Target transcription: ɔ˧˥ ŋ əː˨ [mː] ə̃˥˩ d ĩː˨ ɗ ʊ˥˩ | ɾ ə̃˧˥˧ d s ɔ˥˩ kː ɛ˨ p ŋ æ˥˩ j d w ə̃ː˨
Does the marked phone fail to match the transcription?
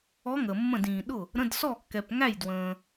no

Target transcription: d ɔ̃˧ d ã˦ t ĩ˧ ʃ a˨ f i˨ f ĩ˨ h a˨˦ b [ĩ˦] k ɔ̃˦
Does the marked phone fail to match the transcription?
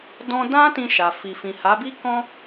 yes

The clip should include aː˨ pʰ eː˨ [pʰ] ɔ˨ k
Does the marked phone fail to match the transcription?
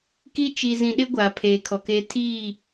yes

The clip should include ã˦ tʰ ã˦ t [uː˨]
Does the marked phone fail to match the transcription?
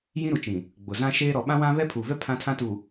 yes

